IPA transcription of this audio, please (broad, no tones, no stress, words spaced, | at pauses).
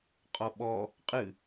qʼɔɓɔ | qʼɨ